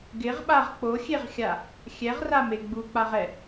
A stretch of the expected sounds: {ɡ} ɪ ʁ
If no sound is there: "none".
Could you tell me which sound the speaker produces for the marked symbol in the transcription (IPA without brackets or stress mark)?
ɡ